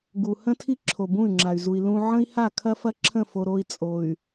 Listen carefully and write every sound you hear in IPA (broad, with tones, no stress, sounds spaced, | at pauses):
ɡ u˨ h ə̃˦ tʰ i˦ ǁʰ o˨ b ũ˦˨ y̯ ŋ͡ǁ a˨ y̯ z u˨ i̯ l ũ˦ ʕ ə̃˦ i̯ h a˦˨ kʰ ɐ˦ f ɐ˦ ǁʰ ə̃˦˨ f o˨ ɾ o˦ i̯ t͡sʼ o˨ y̯